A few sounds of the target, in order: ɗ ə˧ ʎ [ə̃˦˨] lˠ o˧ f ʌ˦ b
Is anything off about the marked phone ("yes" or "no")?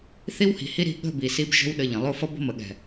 yes